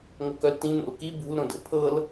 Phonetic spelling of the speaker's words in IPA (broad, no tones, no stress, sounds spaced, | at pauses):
ŋ o k œ l t ĩ n̪ o̰ l k i b ṳ l ɾ õ d ə̰ pʰ ɤ l